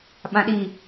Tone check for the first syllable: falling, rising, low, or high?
low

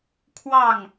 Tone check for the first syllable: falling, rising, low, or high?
falling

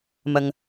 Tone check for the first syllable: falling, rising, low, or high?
low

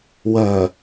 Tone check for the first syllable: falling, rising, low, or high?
low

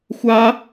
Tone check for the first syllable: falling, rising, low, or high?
high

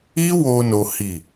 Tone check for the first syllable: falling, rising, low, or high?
high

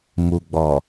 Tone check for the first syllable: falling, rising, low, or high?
low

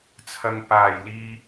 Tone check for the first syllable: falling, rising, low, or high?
low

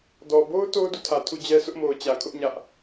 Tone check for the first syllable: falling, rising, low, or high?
low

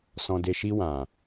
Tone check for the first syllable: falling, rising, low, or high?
low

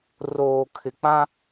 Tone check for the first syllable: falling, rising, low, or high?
low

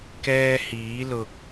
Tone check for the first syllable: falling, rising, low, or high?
high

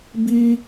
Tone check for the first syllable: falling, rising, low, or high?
high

